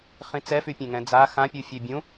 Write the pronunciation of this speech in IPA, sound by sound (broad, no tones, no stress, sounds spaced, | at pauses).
χ ĩ t͡s ɛ f y pʲ ẽ ŋ ɛ̃ d͡z a x ã pʲ u fʲ e bʲ ũ